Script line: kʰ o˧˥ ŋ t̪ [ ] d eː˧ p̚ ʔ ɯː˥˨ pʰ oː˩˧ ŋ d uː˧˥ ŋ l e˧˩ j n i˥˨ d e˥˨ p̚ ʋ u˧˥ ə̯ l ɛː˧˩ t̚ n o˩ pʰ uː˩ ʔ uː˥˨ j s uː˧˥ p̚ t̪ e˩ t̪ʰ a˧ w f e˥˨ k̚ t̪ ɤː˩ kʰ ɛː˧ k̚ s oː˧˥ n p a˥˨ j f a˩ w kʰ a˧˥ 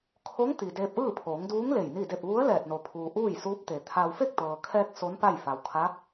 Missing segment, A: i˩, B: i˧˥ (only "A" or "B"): A